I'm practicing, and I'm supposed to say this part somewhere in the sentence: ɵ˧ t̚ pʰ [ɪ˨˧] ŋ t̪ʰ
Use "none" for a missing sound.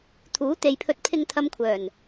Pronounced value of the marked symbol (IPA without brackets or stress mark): ɪ˧